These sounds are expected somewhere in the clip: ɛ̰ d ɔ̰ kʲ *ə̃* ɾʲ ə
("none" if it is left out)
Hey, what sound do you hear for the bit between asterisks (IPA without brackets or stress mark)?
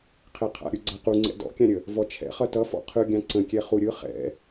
ã